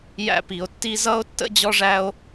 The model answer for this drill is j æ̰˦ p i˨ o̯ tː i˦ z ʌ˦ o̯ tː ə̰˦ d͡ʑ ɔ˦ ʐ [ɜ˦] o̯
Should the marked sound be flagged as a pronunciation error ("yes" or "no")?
yes